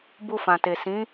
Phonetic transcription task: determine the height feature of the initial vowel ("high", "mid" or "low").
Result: high